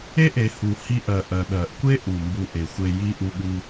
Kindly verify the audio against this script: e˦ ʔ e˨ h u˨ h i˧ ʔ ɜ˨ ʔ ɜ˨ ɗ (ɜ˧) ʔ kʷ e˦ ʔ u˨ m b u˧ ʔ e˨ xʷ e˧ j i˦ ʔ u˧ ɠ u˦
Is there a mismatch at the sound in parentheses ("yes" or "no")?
yes